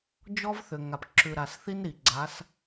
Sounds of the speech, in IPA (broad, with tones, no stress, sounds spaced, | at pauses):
d͡ʒ ɔ˦ v θ ʏ˨ ŋ a˨ p ǁ ʉ˨ ɾ a˨ s θ i˦ n ɾ i˨ ɡ͡ǀ a˨˦ s